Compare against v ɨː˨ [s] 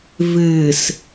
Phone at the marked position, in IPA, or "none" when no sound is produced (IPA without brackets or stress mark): s